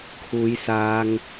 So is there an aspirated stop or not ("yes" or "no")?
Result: yes